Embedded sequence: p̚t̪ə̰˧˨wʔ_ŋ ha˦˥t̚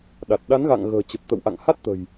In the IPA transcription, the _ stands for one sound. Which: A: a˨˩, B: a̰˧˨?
B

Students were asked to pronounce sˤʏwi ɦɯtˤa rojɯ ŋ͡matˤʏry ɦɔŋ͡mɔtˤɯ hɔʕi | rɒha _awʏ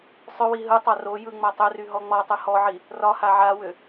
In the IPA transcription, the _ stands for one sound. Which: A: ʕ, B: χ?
A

